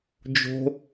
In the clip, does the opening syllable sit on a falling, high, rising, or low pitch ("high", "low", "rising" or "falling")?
high